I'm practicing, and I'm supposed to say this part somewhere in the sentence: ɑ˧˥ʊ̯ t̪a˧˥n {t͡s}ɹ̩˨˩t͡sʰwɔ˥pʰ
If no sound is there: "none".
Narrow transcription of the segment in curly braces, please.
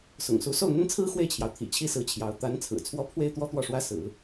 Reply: t͡sʰ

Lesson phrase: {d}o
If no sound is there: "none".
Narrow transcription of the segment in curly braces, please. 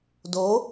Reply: d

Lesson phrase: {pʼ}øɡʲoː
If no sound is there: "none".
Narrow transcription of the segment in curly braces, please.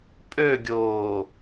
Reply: pʼ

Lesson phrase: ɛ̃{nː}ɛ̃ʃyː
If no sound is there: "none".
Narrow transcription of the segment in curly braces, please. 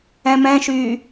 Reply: m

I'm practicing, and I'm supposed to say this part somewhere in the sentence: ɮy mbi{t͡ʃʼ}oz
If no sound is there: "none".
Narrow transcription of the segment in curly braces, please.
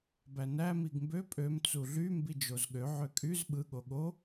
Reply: d͡ʒ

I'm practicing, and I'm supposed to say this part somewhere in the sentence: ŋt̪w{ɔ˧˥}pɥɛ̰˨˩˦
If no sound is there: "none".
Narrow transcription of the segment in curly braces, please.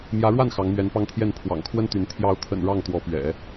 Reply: ɔ˧˥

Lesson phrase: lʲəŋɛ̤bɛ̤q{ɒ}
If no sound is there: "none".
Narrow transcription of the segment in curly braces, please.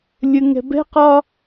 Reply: ɒ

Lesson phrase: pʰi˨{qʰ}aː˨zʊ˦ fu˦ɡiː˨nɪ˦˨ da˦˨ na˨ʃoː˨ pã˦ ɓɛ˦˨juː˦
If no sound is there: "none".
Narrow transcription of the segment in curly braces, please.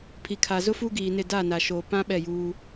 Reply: kʰ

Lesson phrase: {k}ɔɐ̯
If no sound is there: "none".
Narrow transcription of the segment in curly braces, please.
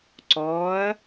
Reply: ǀ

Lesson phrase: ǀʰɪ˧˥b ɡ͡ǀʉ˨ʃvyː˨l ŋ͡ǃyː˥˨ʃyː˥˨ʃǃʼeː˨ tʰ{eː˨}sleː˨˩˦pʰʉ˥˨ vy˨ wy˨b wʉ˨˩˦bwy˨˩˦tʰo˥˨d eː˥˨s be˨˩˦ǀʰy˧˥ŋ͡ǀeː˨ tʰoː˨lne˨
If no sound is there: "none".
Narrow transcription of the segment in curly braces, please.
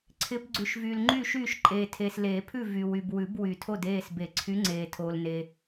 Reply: eː˨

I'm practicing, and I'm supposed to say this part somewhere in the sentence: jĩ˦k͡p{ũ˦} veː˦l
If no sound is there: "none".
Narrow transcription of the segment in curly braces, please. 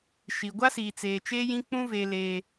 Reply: ũ˦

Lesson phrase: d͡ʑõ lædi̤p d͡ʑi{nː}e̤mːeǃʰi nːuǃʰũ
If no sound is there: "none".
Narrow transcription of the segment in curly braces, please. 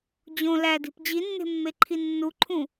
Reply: nː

